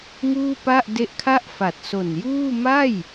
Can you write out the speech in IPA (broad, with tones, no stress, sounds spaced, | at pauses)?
ŋ uː˥˩ p a˥˩ ʔ d e˦˥ ʔ kʰ a˥˩ ʔ f a˨˩ t̚ s o˨˩ n j uː˥˩ m a˥˩ j